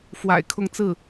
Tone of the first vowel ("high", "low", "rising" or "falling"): low